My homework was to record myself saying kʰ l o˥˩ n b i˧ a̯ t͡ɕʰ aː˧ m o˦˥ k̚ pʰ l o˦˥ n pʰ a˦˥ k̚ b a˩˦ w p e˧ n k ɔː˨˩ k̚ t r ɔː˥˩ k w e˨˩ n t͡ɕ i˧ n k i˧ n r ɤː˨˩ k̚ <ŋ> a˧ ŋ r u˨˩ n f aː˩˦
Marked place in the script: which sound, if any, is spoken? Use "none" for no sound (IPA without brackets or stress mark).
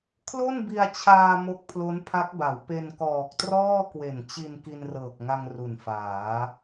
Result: ŋ